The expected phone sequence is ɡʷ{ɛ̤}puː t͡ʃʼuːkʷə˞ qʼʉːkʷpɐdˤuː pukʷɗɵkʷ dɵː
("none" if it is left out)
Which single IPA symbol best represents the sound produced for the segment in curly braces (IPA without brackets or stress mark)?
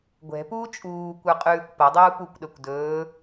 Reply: ɛ̤